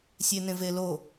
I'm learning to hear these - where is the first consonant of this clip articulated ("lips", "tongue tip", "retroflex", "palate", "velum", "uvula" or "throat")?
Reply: tongue tip